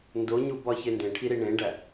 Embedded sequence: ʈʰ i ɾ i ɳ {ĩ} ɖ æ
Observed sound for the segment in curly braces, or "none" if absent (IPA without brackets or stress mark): ẽ